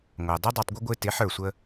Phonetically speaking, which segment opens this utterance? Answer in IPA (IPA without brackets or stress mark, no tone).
ŋʷ